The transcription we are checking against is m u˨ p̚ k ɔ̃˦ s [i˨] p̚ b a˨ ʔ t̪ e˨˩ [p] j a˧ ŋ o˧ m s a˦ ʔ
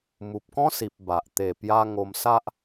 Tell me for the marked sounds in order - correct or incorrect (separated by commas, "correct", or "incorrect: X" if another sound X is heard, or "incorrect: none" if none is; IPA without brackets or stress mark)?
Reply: correct, correct